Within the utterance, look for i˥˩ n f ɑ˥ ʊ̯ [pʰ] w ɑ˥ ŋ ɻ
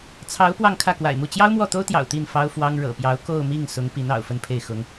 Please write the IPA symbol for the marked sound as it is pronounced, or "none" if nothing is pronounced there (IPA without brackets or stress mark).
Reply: f